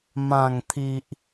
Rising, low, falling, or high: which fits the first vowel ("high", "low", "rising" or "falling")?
low